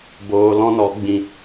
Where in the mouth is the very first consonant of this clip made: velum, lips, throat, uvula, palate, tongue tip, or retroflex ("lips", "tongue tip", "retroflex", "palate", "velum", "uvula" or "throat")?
lips